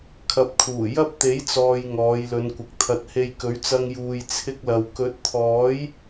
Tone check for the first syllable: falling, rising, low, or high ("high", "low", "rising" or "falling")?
rising